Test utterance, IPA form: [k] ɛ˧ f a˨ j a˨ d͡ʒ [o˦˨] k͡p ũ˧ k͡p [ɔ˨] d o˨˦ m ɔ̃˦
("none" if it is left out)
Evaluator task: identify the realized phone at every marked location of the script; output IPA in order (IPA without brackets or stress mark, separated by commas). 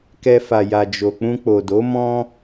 k, o˨, o˨